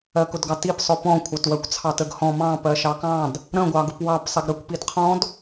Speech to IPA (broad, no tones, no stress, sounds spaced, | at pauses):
ɜ k ʊ d ɡ ɑ t i p sˤ ʊ p ɔ̃ kʷʰ ɑ t w ɜ kʷ t͡sʰ ɑ t ə ɡ h ɔ̃ m ɑ̃ p ɜ ʃ ɑ k ɑ̃ d | ɾ ə̃ ɡʷ ɑ ɡ ʊ p w ɑ p sˤ ɪ ɡ ɾ ə kʷ p i d qʰ ɔ̃ d